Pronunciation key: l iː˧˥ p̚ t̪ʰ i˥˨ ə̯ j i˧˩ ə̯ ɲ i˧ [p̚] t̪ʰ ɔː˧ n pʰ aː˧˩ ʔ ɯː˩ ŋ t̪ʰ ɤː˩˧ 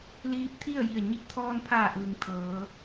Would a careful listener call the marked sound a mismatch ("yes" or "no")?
no